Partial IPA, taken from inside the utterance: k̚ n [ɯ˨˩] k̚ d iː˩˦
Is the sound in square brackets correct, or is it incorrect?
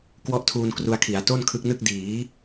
incorrect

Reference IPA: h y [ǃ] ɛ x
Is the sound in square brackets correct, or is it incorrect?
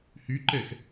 correct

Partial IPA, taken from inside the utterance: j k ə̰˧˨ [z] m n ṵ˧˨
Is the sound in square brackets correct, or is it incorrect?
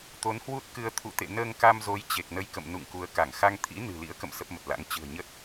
incorrect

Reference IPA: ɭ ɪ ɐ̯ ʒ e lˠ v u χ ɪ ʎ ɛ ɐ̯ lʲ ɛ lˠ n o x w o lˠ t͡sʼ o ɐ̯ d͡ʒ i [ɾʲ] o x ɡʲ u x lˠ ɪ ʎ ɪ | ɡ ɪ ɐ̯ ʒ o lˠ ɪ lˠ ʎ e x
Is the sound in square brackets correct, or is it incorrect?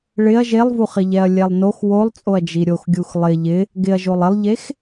correct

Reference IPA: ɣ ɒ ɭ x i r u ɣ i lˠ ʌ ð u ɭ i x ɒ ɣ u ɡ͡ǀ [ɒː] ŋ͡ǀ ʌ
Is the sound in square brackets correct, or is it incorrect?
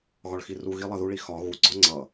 incorrect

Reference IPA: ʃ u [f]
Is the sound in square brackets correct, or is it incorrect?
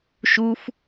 correct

